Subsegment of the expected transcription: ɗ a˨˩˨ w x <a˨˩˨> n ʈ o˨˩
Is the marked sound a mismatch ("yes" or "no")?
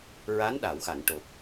no